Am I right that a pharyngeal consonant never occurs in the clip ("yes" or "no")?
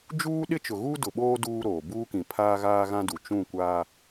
yes